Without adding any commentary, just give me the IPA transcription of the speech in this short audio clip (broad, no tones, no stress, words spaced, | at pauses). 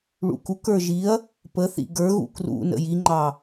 ɭṵkuk ə˞ʒiɐ̯ | pəθḭ ɡə˞ɣṵ krṵ nə̰jiŋ͡ǃɑ